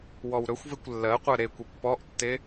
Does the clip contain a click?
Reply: no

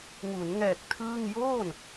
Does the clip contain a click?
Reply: no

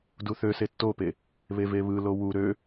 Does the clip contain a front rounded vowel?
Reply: yes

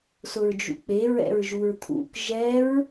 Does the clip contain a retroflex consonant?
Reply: no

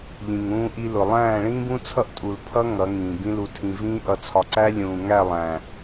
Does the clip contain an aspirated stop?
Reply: yes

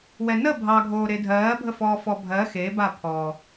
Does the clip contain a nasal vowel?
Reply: no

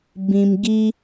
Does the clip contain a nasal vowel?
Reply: yes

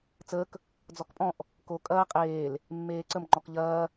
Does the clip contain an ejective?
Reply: yes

